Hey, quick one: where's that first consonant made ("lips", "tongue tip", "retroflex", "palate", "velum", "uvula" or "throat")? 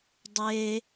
tongue tip